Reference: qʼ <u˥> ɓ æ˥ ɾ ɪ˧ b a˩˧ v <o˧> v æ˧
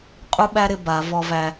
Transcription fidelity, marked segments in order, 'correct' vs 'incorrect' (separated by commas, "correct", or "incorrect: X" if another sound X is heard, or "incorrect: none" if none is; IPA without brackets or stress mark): correct, incorrect: ɔ˧